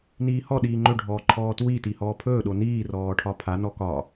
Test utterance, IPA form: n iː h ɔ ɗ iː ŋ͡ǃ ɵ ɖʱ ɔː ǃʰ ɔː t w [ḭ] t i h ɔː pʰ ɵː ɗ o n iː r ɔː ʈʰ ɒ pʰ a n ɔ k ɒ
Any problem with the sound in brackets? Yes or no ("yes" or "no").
yes